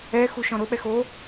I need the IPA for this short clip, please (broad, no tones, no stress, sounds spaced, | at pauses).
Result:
ɛ x u ʃ ɔ̃ ɾ ʊ ɓ ɛ x o